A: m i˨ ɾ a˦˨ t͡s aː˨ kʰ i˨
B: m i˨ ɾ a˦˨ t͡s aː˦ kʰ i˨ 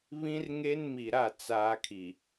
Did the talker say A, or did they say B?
B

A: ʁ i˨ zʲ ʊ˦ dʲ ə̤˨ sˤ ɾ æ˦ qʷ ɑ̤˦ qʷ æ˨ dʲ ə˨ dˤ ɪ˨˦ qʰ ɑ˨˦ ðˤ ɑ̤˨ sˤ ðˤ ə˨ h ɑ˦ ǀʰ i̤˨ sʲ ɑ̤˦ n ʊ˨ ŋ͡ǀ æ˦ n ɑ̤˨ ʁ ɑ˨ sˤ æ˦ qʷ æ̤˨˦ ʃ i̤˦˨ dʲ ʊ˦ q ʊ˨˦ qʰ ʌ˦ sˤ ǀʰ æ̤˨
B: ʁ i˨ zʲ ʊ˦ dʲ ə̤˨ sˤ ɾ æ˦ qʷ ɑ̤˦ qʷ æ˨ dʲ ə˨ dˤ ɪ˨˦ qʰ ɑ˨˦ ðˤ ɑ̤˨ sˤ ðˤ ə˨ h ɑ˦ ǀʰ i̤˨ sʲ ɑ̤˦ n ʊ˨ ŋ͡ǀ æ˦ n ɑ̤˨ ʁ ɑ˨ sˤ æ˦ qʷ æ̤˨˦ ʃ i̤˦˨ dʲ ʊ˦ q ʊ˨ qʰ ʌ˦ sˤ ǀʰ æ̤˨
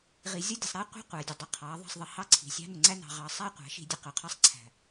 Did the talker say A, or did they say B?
A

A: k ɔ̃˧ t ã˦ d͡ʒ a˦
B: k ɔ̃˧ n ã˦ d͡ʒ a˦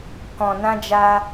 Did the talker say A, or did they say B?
B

